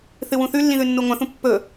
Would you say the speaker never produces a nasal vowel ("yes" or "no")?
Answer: no